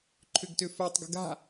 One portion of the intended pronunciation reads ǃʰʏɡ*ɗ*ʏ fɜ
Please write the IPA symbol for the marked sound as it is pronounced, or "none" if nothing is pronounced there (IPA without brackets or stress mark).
t